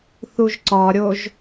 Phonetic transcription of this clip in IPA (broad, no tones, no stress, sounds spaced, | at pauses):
θ u ʒ ǀ ɒ ɾʲ o ʒ